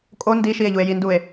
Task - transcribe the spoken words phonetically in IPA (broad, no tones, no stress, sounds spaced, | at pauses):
kʼ o n d i ʃ i e̯ ʎ u e̯ j i n d u e̯